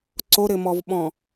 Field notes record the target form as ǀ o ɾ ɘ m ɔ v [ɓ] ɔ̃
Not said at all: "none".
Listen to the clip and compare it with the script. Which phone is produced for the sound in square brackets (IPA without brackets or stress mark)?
ɓ